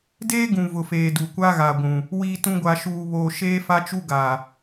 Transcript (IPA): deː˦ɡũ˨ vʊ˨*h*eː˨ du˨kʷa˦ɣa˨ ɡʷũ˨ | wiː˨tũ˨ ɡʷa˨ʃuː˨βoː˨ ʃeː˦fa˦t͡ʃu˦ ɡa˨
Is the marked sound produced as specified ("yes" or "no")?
no